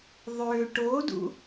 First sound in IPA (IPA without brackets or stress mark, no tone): ðˤ